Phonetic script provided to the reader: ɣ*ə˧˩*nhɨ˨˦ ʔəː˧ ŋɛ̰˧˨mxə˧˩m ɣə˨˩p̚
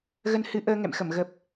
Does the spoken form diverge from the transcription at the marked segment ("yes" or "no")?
yes